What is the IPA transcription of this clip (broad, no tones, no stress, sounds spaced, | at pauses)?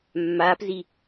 mː aː p z i